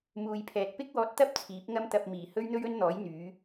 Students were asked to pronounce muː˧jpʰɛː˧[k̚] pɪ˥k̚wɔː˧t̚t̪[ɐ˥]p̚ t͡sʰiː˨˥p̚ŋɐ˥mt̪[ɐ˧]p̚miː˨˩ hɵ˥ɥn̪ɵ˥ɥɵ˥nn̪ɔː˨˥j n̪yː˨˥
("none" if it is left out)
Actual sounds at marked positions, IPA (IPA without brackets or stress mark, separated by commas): t̚, ɐ˥, ɐ˧